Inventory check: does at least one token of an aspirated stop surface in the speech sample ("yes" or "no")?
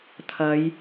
yes